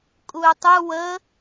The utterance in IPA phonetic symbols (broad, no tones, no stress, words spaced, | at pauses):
kʼuy̯tˤu wə